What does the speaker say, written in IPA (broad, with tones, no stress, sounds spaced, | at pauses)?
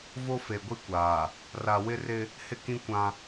v o˦ f e˨ ɡʷ i˦ kʷ aː˨ | r a˨ w ɪ˦ r ɪ˦ | h ɪ˦ k ĩ˦ kʷ ã˦